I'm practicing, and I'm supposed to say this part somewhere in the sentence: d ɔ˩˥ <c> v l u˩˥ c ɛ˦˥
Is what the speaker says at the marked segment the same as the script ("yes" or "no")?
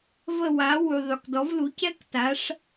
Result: no